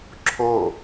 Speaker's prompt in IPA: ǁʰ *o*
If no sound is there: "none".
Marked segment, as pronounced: o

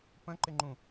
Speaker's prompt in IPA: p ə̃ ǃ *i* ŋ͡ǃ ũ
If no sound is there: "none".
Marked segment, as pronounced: ɪ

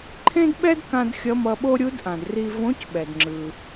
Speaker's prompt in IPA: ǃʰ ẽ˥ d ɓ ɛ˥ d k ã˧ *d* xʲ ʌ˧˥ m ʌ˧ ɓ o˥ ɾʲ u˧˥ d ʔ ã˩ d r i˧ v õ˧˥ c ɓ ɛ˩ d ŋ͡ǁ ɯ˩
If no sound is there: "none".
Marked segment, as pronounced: d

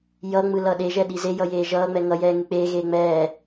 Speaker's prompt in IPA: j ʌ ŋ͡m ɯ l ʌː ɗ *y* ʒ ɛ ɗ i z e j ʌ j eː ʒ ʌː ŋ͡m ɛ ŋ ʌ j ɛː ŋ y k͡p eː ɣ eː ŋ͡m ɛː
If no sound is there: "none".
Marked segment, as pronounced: e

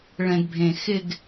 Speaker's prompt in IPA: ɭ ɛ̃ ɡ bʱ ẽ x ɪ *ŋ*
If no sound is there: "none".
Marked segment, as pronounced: ɡ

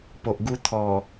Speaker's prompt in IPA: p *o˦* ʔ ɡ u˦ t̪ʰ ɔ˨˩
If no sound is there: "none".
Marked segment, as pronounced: o˨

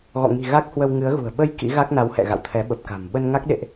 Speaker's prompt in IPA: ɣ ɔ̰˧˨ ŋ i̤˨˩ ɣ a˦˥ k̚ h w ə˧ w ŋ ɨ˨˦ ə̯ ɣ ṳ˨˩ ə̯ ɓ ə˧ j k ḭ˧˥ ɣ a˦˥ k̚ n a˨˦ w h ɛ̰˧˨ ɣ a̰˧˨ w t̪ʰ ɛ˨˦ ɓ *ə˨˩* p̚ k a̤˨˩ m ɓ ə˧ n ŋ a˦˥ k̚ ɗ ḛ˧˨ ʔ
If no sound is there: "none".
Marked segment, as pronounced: ə˨˩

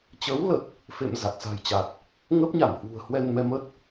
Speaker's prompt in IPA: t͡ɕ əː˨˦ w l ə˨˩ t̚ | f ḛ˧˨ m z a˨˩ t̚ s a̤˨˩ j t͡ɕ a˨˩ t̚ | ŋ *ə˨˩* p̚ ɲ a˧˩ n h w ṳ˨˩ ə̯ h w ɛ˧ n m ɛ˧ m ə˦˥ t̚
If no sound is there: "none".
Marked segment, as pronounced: ə˦˥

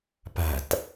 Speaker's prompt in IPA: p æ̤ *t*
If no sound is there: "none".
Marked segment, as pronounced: t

